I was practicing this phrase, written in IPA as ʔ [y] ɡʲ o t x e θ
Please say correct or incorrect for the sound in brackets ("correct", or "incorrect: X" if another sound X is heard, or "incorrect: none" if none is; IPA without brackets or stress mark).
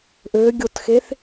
incorrect: ø